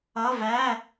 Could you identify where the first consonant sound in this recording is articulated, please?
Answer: labial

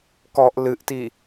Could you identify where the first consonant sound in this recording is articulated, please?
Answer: velar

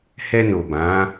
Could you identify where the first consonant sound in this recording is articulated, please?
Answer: glottal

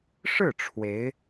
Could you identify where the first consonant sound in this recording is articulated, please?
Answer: retroflex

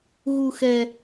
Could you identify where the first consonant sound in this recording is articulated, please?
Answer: velar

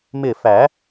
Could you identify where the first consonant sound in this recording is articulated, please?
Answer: labial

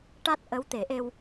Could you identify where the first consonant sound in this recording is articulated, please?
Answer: retroflex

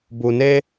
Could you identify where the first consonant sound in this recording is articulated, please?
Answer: labial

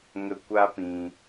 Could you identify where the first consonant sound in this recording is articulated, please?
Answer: velar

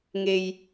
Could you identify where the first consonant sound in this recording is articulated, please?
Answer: velar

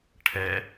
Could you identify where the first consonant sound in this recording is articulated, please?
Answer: retroflex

